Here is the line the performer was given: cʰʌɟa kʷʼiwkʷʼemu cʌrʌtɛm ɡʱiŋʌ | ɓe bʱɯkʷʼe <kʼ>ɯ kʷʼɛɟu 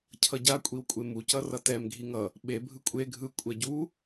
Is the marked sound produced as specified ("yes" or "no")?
no